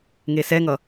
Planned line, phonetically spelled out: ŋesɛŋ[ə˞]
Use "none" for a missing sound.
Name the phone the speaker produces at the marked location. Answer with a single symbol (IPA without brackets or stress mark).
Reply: ʌ